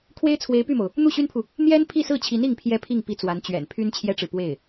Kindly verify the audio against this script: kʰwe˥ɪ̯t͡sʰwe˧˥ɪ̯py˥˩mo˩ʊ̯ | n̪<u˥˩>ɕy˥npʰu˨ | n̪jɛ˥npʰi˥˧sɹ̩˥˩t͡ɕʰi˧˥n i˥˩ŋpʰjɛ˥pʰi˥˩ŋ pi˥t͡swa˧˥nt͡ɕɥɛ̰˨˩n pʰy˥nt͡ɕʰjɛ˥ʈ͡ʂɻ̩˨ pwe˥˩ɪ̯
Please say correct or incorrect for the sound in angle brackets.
correct